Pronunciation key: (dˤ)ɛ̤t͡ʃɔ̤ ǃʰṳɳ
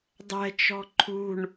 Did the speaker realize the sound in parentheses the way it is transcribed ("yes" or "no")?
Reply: yes